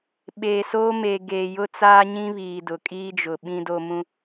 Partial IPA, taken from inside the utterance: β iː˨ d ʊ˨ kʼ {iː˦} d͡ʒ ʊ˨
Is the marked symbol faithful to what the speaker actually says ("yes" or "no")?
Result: yes